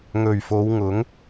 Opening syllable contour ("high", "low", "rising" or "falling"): low